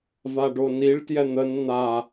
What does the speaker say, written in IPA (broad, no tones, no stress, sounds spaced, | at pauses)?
v a ɖ o n i ɭ t j ɛ n̪ ə n n̪ a